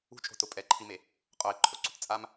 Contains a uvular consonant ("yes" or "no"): yes